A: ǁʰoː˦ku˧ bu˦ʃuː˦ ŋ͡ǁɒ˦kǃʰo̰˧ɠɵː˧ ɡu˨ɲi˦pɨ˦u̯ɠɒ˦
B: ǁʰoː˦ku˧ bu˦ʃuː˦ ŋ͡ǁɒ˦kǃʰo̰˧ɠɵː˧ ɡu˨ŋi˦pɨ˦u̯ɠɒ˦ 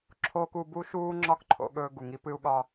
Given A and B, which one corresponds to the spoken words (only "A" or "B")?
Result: B